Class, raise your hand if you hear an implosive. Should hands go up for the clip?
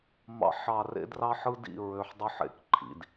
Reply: no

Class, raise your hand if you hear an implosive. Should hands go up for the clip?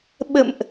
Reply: yes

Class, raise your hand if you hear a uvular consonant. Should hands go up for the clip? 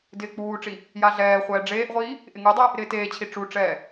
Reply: yes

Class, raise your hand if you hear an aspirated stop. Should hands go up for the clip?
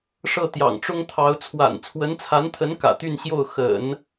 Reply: yes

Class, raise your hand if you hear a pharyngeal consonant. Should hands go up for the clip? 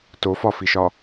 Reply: no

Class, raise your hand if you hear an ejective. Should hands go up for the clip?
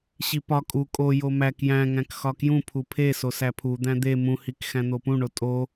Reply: yes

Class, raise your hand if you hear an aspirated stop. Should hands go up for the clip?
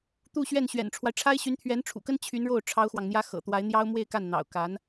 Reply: yes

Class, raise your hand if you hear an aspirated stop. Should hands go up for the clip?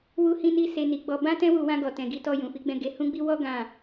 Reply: no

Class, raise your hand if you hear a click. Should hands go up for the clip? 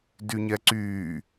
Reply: yes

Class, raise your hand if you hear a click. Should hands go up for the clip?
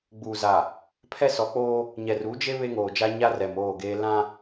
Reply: no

